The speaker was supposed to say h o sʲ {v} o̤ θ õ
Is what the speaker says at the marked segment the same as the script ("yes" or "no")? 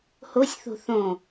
no